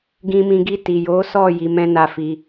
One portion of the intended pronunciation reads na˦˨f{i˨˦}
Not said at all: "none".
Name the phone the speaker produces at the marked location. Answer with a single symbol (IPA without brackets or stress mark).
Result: i˧